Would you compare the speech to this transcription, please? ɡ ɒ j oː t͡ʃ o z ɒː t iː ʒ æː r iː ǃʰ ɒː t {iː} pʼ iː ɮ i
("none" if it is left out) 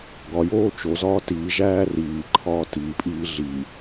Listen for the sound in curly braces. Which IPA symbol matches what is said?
iː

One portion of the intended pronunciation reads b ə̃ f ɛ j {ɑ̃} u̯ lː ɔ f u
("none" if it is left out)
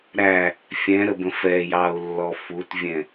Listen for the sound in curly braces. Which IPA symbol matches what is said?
ɑ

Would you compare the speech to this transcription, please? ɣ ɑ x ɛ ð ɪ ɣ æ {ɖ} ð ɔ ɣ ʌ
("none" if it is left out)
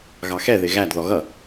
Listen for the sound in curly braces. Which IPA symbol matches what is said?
d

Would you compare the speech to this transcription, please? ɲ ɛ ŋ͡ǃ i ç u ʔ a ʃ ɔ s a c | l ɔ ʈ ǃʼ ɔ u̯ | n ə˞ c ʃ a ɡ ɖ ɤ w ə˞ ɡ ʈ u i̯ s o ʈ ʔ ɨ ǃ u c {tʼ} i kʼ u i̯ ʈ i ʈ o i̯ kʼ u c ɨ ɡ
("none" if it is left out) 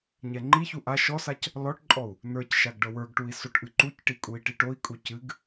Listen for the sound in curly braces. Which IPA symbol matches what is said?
ʈ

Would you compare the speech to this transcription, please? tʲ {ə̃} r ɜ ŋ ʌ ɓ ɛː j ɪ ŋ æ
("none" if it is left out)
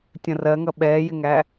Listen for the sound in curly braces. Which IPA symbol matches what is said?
ə̃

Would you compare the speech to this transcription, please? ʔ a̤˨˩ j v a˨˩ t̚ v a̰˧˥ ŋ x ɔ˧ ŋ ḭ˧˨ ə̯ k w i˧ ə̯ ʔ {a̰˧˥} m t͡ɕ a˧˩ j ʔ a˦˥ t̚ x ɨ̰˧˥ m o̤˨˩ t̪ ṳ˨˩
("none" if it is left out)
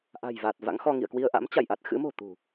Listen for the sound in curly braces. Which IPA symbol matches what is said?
a̰˧˥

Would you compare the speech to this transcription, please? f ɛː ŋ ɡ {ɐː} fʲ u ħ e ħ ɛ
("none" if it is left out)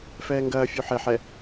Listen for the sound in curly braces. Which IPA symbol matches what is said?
ɐː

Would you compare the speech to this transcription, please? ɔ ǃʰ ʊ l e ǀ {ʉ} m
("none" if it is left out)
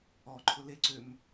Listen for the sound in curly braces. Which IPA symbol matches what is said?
ø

